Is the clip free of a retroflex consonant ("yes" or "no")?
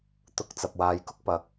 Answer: yes